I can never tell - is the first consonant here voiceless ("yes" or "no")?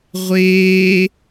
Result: no